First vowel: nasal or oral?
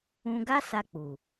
nasal